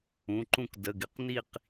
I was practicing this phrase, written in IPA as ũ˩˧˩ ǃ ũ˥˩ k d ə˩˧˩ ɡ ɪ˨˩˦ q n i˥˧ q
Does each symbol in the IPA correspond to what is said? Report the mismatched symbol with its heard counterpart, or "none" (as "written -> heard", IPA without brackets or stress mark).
none